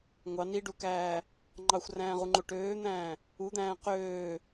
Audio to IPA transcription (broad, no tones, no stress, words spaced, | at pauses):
ŋʷɑ niɖukæː | ŋ͡ǃɑxʷræ̃ːʁuŋ͡ǃo ʈøːn̪æ̃ː | ud̪æ̃ː qøː